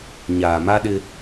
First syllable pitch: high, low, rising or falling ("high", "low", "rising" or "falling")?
low